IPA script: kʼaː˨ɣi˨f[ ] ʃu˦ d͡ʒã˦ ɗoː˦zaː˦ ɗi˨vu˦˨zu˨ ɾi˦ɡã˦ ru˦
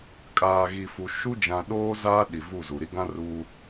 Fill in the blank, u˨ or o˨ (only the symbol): u˨